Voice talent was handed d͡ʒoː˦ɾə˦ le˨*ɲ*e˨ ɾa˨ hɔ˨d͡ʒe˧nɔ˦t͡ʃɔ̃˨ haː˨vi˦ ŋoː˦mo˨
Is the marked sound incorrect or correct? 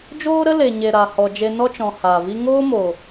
correct